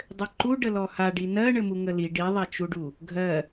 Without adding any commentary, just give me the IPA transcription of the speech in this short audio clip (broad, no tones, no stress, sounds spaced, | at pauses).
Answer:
dˤ ɘ ǃ u ɖ ə l ɔ h a ɖ i n ɜ ɳ ɘ m u ŋ ə l i ɖ i ðˤ a t͡ʃ u ɖ u | ɡʱ ɜ